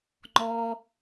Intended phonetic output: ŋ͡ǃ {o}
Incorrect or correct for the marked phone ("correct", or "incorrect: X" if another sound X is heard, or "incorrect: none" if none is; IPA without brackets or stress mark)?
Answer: incorrect: ɔ